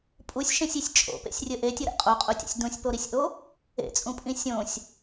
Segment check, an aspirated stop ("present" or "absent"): absent